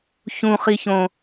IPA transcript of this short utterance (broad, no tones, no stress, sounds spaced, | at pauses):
ç ũ χ i ç õ